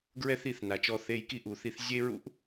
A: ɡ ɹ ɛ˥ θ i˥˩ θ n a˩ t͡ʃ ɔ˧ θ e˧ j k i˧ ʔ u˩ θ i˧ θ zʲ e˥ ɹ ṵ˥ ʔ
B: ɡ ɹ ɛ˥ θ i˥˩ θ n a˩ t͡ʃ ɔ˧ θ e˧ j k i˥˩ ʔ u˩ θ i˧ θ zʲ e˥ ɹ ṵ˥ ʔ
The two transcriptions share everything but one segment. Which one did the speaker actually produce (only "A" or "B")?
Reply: B